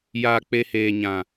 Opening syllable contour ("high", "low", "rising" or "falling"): low